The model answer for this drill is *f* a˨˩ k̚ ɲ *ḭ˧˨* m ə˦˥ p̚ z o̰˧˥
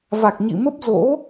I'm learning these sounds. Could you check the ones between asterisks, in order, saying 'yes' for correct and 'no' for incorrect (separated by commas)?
no, yes